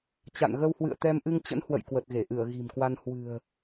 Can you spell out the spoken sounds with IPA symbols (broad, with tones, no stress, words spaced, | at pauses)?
t͡ɕa̰˧˨nɣə˧whwɨ̰˧˨ə̯ t̪ɛ˧mʔɨ˧ŋt͡ɕə̰˧˥nhwə̰˧˨j kwə˨˩t̚ɣe˧˩ʔɨ˧˩ə̯ ɣi̤˨˩mkwa˧n hwɨ̤˨˩ə̯